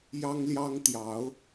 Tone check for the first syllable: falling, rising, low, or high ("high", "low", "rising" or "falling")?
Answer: high